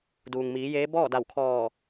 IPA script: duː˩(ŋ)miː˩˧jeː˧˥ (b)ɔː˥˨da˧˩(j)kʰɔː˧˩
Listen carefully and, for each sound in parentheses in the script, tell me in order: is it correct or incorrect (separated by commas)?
correct, correct, incorrect